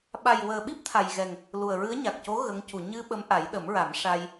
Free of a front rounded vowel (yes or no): yes